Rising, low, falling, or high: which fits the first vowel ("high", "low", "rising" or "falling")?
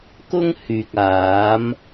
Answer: high